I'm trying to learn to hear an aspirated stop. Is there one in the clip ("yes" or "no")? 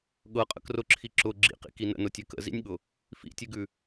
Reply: yes